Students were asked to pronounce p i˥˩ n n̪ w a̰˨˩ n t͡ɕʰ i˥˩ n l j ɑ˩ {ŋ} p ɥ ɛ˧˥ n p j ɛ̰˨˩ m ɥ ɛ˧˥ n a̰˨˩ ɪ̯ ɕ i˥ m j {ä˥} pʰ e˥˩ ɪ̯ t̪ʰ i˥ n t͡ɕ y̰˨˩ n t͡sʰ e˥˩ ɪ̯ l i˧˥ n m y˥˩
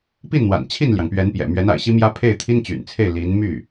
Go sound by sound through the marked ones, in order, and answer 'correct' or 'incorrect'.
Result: correct, correct

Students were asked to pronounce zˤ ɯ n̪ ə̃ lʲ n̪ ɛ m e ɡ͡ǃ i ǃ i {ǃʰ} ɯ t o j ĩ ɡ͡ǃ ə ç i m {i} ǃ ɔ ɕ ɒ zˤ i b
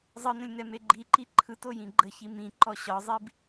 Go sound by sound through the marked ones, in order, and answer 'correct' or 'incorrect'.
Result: correct, incorrect: ĩ

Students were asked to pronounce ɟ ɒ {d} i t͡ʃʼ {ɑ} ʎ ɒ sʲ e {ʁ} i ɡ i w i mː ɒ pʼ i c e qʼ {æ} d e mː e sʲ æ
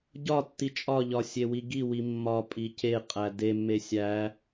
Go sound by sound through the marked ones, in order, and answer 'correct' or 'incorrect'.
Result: incorrect: tː, incorrect: ɒ, incorrect: w, correct

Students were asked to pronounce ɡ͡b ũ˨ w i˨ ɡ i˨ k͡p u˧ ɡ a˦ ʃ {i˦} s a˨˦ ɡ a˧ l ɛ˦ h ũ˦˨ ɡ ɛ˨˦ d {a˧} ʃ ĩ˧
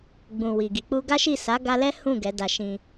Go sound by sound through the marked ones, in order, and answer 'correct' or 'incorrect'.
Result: incorrect: i˦˨, correct

